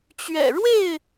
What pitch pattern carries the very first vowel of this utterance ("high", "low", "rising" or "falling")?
low